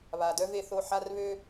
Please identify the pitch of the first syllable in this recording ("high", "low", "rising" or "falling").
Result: low